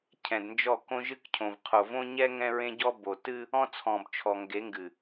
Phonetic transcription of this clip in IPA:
cʰɛ̃˨dnd͡ʒɔ˦˨ kõ˦ʒɨ˦k cʰõ˨vqʰo˨ võ˦ɲɛ˦ ŋɛ̃˦ɹẽ˦ɟɔ˦ bo˨ tɨ˦ | ɔ̃˦t͡sʰɔ̃˨bt͡ʃʰɔ˨ŋɡe˨˦ ŋɡɨ˨

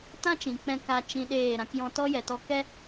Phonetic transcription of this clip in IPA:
tã˦t͡ʃĩ˨ k͡pɛ̃˧ ka˧ t͡ʃĩ˧ɗeː˦˨ ɾã˧kjɔ̃˧tɔ˦jɛ˨ tɔ˧kɛ˦

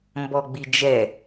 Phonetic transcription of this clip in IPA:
mbɔɡ͡bid͡ʒɛ

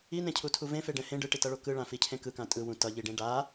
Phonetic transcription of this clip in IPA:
inẽcʰutʰu vẽfeɖɛ̃ hẽ ɖɯʈitʌɭo kɯɭãficʰẽ kɯkã tʼɯwũ tʌʎiɖẽ ɖa

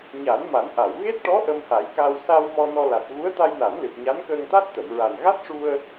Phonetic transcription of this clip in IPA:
ɲa˨˩˦nma˨˩˦nʔa˨˩˨w ɣe˦˥t̚ʈɔ˧˥ ʔə˧mha˨˩˦jka˧w sa˧w mɔ˧nɔ˧ la˨˩t̚ ɣu˧˥ə̯t̪a˧jna˨˩˦nlɨ˨˩p̚ ɲa˧˥nkəː˧ŋt̪a˦˥t̚ t̪ə˨˩˨mɹa˨˩n ɣa˦˥t̚ʂu˧ə̯

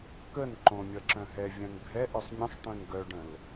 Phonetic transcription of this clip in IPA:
kən ǃõ mʲʌǁœ̃ɦɛ vʲœ̃nbʱɛ ʔœsˤmʲə̃sˤ ʈœ̃nɡœɖə̃l

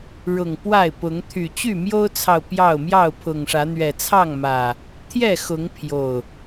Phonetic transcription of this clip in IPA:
ɻʊ˨˩ŋ pwa˥˨ɪ̯pʊ˨˦ŋ t̪ʰy˨˩ t͡ɕy˥˨mjo˦ʊ̯t͡sʰɑ˨ʊ̯ pjɑ˥˨ʊ̯ mjɑ˥˨ʊ̯pʰʊ˨˩ŋʂä˨˦n̪ɥɛ˨˩ t͡sʰɑ˥˨ŋ mä˨˩ | t̪ʰjɛ˥˨xʊ˨˦ŋ pʰjo˨˩ʊ̯

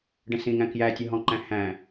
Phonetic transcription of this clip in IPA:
ɖə̃sĩŋæ̃ kjæ tʲəɦɔ̃ǃæ̃ hæ̃

